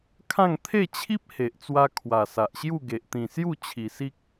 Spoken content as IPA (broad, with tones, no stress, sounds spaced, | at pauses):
kʰ ã˥˧ ŋ t̪ʰ e˥˧ t͡ɕʰ i˦ p̚ h e˨ ʔ t͡s w a˧ kʰ w a˨˩ s a˨ ʔ ɕ j u˥˧ ɡ e˨ ʔ t̪ ĩ˨˩ s j u˥˧ t͡ɕʰ i˨˩ s i˦ k̚